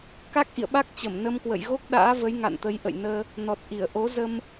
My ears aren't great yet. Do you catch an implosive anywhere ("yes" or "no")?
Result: yes